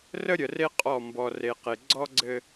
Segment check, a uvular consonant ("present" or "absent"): present